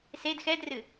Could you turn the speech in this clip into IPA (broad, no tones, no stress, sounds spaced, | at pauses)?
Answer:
s e d x ɛ d r ɨ